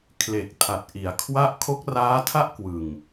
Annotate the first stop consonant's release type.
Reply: aspirated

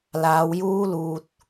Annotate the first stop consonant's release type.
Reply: plain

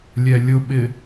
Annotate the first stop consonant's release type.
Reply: implosive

